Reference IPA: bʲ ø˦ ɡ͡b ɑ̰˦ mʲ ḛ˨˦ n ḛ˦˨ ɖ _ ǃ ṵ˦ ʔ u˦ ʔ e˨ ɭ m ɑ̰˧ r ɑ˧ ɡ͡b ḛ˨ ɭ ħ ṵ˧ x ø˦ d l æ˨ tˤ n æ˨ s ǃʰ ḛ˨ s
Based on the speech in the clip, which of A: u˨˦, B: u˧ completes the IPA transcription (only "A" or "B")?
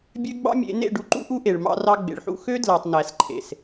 B